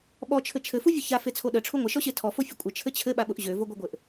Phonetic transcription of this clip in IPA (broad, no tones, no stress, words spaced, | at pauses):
ɓɔt͡ʃʰɘ t͡ʃʰɘfu vʲʊça fet͡sʰoɗə ʈ͡ʂʰuŋʷəʃɔɕe tʰɔfo fʲəkʷʼə t͡ʃʰɘt͡ɕʰɘɓaɓʊʔ ʑøvoɡʷɐɡʷɘʔ